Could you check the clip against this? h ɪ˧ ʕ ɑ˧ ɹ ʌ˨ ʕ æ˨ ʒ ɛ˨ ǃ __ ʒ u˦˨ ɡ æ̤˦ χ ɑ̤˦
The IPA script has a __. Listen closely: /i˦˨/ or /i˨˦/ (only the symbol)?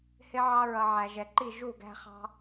i˦˨